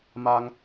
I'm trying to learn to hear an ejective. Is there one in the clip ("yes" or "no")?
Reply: no